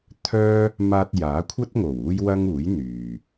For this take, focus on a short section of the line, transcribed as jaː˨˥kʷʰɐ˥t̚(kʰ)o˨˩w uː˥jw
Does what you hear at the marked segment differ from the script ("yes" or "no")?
yes